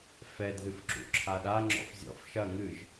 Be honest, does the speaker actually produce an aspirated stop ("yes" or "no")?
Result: yes